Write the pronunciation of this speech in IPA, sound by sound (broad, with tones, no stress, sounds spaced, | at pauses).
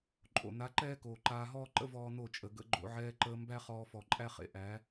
ǃʼ o̰˨ n a˨˦ ǃ ɛː˦ k oː˨ ǃ aː˧ ɦ ɔː˦ ǃ ə̰˦ v ɔː˦ n o˦˨ t͡ʃʼ ə˨ ɡ ə̰˧ ɡ͡ǃ o̰˧ ʕ ɛː˧ ǃ əː˧ m b æ˦ χ ɔː˧ f ɔ˨ ǃʼ æ˦ χ ḛ˨ ʔ æ˨˦